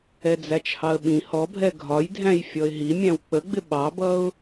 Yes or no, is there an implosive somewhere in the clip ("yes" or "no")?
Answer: yes